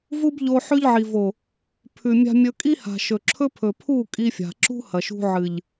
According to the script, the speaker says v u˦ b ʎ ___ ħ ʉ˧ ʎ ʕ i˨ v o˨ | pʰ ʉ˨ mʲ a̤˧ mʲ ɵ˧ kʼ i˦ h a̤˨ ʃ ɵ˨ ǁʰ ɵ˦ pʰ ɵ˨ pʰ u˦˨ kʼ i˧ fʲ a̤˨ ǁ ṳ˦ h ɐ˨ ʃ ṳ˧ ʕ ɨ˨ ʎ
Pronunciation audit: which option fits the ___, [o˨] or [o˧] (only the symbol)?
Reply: o˧